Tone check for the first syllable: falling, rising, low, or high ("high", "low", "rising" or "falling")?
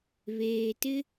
low